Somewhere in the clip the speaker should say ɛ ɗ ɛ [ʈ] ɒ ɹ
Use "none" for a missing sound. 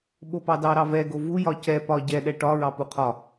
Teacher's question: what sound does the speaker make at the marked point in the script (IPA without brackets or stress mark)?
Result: ʈ